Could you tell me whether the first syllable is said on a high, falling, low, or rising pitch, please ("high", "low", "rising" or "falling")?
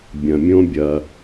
low